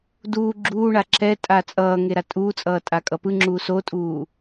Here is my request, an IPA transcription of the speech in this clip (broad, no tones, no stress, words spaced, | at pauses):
duː ɡ͡ǁuː ɳaǁɛtʼa t͡sʼʌː ŋeɾatʼuːt͡sʼʌː tʼakʼʌpɯŋ͡ǁuː sotʼuː